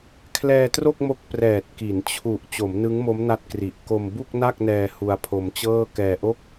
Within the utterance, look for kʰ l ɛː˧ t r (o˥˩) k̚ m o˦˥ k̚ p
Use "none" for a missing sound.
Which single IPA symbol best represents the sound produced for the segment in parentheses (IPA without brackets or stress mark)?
o˥˩